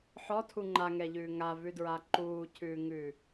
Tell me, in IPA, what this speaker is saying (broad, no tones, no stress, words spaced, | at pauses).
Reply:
ħɔtʰu ŋ͡ǃaŋɛʎʉː ŋavʉdɹa ǃuːcʰʉːŋʉː